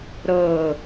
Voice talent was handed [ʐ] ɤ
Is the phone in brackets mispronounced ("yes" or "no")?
yes